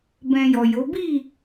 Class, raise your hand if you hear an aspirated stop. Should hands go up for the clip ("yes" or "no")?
no